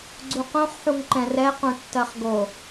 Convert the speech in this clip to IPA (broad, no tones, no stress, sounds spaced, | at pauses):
ɡ͡ǀ u q õ χ ħ u ŋ ǃ ɛ̃ r ɛ q ũ tː ɜ χ ɡ o